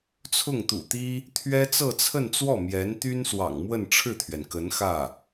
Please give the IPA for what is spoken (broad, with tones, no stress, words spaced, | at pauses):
t͡sʰʊ˥˩ŋt̪ṵ˨˩t̪i˥ | t̪ʰɥɛ˥t͡sɤ˥˧t͡sʰə˥˧nt͡swɔ˥˩ mjɛ˧˥nt̪y˥nswɑ̰˨˩ŋ mwə˥˧nʈ͡ʂʰɻ̩˥˩t̪ʰɥɛ˩n kə˧˥nxä˥˩